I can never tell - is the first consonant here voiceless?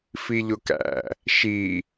yes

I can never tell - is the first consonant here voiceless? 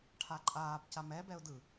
yes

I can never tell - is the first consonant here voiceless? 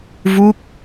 no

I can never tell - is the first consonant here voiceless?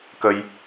yes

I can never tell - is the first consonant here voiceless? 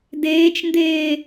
no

